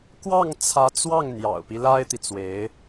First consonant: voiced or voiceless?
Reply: voiceless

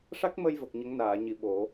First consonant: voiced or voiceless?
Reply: voiceless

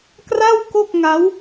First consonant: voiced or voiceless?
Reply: voiceless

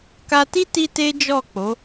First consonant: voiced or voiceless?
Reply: voiceless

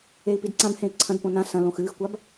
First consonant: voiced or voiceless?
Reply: voiceless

